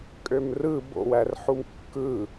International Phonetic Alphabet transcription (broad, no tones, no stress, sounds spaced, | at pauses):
kʼ ø m r ɯ b o̰ w æ r ħ u m kː ɯ